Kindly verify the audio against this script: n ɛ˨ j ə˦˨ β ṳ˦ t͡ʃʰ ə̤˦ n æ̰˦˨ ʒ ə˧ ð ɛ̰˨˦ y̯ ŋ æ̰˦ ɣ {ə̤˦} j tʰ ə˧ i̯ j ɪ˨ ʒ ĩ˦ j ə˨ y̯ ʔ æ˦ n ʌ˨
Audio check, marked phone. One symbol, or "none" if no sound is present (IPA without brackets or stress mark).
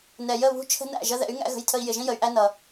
ə̤˧